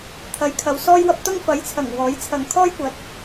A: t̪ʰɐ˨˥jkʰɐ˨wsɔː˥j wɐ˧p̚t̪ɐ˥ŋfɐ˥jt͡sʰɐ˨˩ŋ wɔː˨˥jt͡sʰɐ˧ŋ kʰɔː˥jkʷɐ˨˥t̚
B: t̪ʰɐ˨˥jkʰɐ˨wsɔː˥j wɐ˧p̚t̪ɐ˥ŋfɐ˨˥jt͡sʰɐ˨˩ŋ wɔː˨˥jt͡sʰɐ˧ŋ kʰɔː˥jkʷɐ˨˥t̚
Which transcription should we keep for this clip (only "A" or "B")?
B